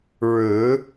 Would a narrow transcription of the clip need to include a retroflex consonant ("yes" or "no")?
yes